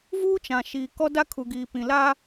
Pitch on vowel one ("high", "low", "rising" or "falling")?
high